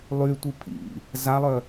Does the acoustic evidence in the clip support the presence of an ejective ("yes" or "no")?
no